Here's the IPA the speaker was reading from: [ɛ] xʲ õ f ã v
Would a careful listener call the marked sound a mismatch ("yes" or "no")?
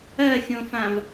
yes